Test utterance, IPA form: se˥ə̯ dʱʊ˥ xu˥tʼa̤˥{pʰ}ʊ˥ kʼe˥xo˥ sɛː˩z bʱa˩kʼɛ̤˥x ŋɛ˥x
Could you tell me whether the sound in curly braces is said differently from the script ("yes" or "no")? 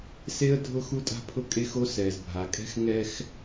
no